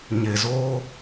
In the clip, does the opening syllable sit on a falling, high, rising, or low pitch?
low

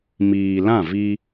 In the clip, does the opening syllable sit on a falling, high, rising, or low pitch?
low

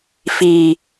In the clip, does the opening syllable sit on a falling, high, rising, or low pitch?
low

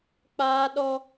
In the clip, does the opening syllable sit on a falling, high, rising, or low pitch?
high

